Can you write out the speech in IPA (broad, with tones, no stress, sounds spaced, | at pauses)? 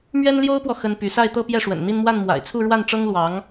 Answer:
m ɥ ɛ˥ n l j o˥ ʊ̯ p w ɔ˨ x ə˥ n p y˧˥ s a˥˧ ɪ̯ t̪ ɤ˥˧ p j ɛ˥˩ ʂ w ə̰˨˩ n n̪ i˥˧ n m w a˥˩ n m w a̰˨˩ ɪ̯ t͡sʰ u˥˧ ɻ w a˥˩ n ʈ͡ʂ ɤ˥ ŋ l w ɑ˧˥ ŋ